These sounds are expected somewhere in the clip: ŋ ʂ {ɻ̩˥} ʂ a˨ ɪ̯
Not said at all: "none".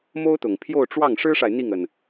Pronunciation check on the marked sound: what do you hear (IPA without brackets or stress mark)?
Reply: ɻ̩˥